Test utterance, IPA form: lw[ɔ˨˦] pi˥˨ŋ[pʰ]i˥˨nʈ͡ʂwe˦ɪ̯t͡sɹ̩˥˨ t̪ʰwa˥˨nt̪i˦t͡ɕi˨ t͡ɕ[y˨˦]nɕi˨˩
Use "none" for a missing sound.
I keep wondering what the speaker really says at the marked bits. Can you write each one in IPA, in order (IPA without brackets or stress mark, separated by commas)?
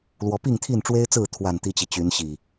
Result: ɔ˨˦, t̪ʰ, y˨˦